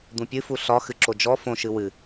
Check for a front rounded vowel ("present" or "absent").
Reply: absent